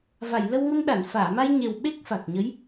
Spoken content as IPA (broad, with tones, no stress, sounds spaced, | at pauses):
v a˨˩˨ j l ə˧ w ŋ u˧ n ɗ a˨˩˨ n f aː˨˩˨ m a˧ j ɲ e˨˩ w ɓ e˦˥ k̚ f a˨˩ k̚ ɲ ə˧˥ j